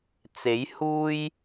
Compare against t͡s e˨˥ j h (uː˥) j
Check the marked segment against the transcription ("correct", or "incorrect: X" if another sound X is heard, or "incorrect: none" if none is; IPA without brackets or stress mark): correct